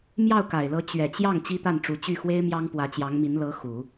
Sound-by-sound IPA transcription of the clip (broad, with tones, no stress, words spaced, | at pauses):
mjɑ˥˩ʊ̯ka˨˩ɪ̯lɤ˧˥ t͡ɕɥɛ˨˩t͡ɕjɑ˥˩ŋ t͡ɕi˥t̪a˥˩nʈ͡ʂu˧˥ t͡ɕy˥˩xwe˥ɪ̯mjɑ˥ŋ pwä˧˥t͡ɕjɑ˧˥ŋmi˧˥n lɤ˧˥ xu˨˩˦